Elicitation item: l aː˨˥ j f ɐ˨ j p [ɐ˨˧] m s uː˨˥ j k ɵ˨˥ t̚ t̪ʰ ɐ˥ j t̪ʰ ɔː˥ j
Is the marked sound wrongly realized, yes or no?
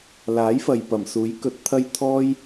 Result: yes